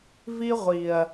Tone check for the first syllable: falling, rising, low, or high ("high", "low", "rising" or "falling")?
high